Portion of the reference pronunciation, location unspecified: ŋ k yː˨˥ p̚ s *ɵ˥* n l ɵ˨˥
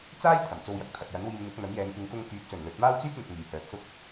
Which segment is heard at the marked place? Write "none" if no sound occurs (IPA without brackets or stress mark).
ɵ˨˩